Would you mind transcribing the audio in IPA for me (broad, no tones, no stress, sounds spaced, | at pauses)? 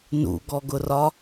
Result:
n ṵ ɡ ɔ ɡ ʊ r ɒ